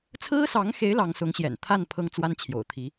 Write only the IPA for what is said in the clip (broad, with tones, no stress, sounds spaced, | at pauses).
t͡sʰ ɹ̩˥ s ɑ˧˥ ŋ x e˧˥ ɪ̯ l ɑ˧˥ ŋ s ʊ˧˥ ŋ ɕ j ɛ̰˨˩ n t̪ʰ a˥˩ n pʰ ɤ˥ ŋ t͡s w a˥ n t͡ɕʰ j o̰˨˩ ʊ̯ t̪ʰ i˧˥